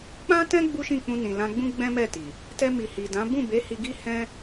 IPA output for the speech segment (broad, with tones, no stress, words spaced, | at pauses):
k͡pã˦tɛ̃˦ ɡ͡bu˦ʃĩ˦˨k͡pũ˧ nĩ˨lã˧ɡ͡bũ˦ ɡ͡bɛ̃˦mɛ˦˨ti˨ | tɛ˧mi˨ hi˨dã˨˦ bũ˦˨be˨˦ hi˧ɡi˦hɛ̃˦